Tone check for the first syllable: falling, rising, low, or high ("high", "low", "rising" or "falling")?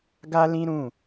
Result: high